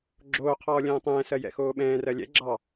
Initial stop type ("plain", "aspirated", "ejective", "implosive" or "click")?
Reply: click